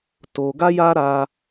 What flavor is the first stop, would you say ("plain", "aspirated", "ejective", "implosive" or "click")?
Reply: plain